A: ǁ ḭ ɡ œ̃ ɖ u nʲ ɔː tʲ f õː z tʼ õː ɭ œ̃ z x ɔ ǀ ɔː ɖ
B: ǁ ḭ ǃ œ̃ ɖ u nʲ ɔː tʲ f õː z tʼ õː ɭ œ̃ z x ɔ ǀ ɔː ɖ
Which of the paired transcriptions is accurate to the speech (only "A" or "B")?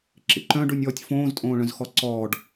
B